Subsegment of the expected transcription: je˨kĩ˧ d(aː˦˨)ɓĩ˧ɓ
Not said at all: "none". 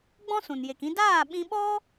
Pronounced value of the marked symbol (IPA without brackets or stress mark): aː˦˨